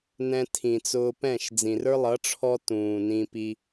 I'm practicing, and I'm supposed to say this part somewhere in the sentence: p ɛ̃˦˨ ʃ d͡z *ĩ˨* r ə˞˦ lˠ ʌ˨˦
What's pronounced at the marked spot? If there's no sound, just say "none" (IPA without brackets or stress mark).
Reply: ĩ˨